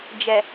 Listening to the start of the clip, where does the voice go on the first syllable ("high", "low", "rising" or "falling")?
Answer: low